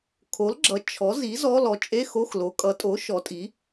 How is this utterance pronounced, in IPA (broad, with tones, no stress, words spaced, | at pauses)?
kʰo˩˥lɡ͡ǁʌ˩˥ t͡ʃʰɔ˩˥ zi˩˥ zɔ˧˥˧lɔ˩˥ t͡ʃʼe˧˥˧xo˧˥˧xlo˩˥ kʼʌ˩˥tʼo˩˥ ʃɔ˩˥tʼi˩˥